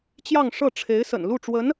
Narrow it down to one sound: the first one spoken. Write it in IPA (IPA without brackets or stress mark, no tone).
t͡ɕ